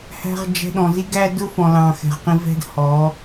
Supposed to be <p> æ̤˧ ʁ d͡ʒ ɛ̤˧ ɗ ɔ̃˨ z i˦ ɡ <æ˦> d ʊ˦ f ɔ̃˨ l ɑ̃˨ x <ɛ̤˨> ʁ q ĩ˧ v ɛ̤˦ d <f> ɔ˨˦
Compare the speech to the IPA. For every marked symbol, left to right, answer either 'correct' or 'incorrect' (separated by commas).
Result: incorrect, correct, correct, incorrect